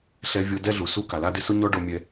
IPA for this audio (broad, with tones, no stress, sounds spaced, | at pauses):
ɬ ɛ˧ vʲ o˧ d ɛ˦ ɮ u˨ s u˦ k a˨ l a˦ d ɪ˦ s ʊ˦ ɲ ɔ˦ ɖ o˧ mʲ ɛ˧